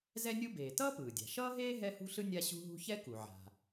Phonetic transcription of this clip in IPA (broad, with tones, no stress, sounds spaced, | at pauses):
z ɛ˥ nʲ u˥ b eː˩ t ʌː˥ p ɯː˩ dʲ a̤˩ ʃ ʌː˥ ɦ eː˥ ɦ ɛ˥ h ṳ˥ ɬ ɯ˥ nʲ a˥ ɕ ṳ˥ ɦ ṳ˥ ç ɛ˥ k u˩ ʕ a̤˩